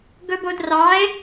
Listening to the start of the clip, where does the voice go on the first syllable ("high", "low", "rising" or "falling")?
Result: high